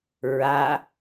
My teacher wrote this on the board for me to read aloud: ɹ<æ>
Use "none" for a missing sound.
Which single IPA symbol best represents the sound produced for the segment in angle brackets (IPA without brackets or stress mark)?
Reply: a